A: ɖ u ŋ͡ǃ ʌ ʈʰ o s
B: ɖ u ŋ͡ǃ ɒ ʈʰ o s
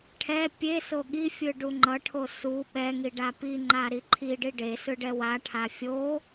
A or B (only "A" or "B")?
A